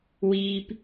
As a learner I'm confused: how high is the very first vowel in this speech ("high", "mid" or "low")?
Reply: high